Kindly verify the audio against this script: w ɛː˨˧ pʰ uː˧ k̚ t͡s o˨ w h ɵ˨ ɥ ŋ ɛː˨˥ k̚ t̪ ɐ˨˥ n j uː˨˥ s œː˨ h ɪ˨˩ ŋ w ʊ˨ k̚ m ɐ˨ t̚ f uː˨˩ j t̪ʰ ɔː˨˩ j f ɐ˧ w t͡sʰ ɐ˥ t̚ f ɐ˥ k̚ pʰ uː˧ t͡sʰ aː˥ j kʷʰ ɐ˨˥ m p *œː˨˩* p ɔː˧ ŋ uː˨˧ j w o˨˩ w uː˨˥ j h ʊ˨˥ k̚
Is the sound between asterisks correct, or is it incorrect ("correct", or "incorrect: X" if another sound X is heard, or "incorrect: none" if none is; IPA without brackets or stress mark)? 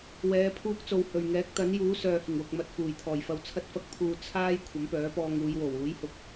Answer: incorrect: œː˨˥